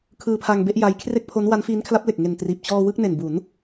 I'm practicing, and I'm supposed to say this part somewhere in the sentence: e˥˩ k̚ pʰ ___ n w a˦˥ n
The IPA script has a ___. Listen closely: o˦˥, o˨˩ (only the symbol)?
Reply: o˦˥